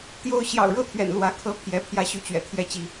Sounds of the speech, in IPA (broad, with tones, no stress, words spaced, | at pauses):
t̪jo˥˨ʊ̯ ɕjɑ̰˨˩ʊ̯ɻɤ˥˨t̪ʰɥɛ̰˨˩n lwä˨˦ kʰɤ˦ pʰjɛ˨˦ pʰjä˦ɕy˨˦t͡ɕɥɛ̰˨˩ t̪ʰjɛ˥˨t͡ɕi˦